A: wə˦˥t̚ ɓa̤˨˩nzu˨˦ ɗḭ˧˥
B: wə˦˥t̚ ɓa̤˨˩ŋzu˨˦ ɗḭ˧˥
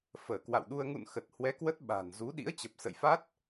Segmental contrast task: A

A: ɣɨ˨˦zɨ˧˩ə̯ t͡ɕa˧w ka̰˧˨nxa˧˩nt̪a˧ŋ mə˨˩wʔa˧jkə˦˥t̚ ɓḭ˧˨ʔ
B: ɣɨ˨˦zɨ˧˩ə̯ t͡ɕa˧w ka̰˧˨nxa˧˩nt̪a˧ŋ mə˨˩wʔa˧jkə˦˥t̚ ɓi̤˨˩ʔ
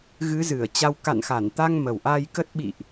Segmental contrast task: A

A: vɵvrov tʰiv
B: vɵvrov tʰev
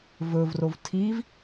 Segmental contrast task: A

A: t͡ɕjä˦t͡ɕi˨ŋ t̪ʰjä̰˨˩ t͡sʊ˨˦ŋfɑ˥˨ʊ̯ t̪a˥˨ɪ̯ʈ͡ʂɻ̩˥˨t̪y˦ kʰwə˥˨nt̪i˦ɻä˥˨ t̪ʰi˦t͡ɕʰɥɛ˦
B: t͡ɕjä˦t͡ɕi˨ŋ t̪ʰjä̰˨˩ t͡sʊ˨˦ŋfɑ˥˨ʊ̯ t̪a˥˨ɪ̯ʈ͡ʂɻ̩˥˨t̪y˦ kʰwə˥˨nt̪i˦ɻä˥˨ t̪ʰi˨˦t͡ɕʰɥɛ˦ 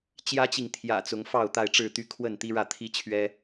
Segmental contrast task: A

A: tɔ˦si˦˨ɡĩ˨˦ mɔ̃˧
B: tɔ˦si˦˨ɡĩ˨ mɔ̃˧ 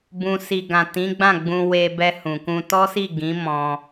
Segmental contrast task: A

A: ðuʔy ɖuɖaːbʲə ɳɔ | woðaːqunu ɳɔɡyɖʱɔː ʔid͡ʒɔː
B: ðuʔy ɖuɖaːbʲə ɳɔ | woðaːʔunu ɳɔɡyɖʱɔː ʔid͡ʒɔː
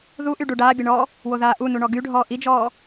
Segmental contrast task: B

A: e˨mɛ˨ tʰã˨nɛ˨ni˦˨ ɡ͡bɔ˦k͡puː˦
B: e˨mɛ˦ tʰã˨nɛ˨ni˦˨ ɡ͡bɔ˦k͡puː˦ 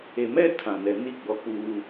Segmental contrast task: B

